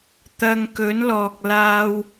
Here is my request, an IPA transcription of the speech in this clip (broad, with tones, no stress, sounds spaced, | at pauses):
t̪ ɐ˧ ŋ k ɵ˨˥ n l ɔː˨ k̚ l aː˧ w